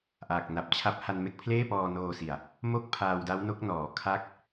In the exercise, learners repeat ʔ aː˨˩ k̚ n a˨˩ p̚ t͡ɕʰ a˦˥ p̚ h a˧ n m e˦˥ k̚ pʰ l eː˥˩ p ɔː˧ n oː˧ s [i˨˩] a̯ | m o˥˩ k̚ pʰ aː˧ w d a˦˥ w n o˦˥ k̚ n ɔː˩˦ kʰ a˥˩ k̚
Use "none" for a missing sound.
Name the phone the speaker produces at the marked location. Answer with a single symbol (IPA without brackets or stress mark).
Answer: i˨˩